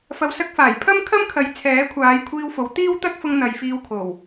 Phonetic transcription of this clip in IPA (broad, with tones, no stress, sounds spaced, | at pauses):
f ɐ˨ w s ɐ˧ k̚ f aː˨˩ j pʰ ɐ˥ m kʰ ɐ˥ m kʰ ɐ˨˥ j t͡sʰ ɛː˨˥ kʷʰ aː˨˧ j kʷʰ iː˧ w f o˨˥ w t̪ iː˥ w t̪ ɐ˥ k̚ f ʊ˧ ŋ n̪ ɐ˨ j f iː˧ w kʰ o˨˩ w